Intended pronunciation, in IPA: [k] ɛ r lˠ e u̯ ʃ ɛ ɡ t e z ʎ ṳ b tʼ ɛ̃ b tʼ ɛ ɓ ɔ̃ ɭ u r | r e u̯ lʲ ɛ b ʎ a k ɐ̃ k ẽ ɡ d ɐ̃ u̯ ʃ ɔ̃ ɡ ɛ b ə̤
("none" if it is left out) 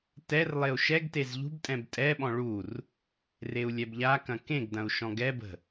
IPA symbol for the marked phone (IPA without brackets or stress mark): t